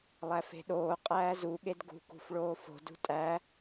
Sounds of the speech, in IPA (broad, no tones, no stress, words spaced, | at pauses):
lˠæfe̤ɗoː qʼæːzu ɠedɡṳ kṳfɭoːfo̤ dṳtʼæ